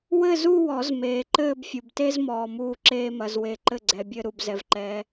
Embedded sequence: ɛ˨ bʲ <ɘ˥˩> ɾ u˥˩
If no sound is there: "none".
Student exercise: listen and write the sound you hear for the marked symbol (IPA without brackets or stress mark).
ɘ˥˧